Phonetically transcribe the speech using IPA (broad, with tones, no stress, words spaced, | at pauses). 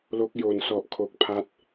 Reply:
lo˦˥k̚jo˨˩nsɔ˨˩ʔ kʰo˨˩k̚pʰa˦˥t̚